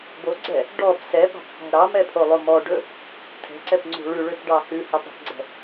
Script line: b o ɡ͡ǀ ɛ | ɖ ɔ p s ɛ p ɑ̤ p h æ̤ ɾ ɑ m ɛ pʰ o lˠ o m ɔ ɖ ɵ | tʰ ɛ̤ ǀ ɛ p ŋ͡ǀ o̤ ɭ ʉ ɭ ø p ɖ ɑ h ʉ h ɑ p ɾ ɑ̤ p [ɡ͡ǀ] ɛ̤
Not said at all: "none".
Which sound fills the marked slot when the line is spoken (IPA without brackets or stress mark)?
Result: ɡ͡ǀ